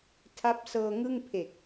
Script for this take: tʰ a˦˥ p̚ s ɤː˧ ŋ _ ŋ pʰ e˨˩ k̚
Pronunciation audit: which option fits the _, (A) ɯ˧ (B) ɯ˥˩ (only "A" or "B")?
B